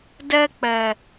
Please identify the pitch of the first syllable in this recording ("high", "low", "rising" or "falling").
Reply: high